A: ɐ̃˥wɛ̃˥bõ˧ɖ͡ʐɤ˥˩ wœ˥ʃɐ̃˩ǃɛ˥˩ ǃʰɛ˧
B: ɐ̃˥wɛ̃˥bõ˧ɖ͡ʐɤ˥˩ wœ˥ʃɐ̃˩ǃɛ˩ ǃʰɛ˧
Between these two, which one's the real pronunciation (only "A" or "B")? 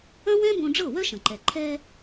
B